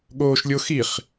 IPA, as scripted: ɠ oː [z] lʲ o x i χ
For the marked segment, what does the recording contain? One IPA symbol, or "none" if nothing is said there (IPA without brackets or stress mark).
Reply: ʃ